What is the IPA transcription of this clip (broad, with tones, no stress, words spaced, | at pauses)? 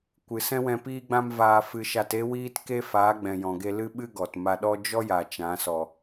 kʷɨ˨sɛ̃˦wɛ̃˧ piː˦ɡ͡bã˦mvaː˧ fɨ˧ʃa˧te˦ wiː˦tke˦ faː˨˦ɡ͡bɛ̃˨jɔ̃˨ɡe˧ lɨ˦ɓɨ˦ɡɔ˨t ma˧ɗɔ˦ d͡ʒɔ˦ja˨ t͡ʃã˨˦sɔ˨